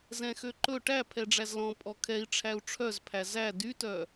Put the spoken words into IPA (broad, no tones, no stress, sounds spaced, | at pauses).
z ɛ̃ x ø ǃ ɵ ʈ æ pʰ ɛ ɖ͡ʐ æ z l ɔ̃ pʼ ɔ kʰ ɛ i̯ ʈ͡ʂʰ æ u̯ ʈ͡ʂʰ œ z pʰ æ z æ d y t œ